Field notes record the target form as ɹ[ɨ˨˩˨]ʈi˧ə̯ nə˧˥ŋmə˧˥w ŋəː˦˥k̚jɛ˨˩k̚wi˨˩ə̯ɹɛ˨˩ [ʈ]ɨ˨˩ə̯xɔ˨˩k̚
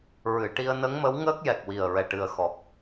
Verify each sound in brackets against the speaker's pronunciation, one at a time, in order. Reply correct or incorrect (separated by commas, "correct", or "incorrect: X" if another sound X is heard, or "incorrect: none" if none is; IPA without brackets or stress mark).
correct, correct